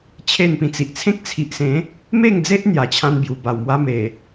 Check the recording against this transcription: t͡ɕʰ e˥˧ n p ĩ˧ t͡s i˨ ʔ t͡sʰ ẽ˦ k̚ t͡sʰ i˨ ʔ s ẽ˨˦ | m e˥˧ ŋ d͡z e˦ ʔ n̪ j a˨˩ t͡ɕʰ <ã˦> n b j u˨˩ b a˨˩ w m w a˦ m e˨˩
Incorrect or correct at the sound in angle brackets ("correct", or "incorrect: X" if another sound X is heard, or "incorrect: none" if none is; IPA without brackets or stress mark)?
correct